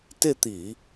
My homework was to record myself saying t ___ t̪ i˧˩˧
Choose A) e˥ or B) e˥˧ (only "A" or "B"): B